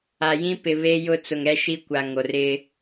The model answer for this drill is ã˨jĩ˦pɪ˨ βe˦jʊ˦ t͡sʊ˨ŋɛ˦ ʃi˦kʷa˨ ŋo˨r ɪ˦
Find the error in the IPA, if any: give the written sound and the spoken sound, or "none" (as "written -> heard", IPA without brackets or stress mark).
ã˨ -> a˨